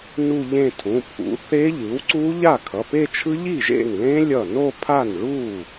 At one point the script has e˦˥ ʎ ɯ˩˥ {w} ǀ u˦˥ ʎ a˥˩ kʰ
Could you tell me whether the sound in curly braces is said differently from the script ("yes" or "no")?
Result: no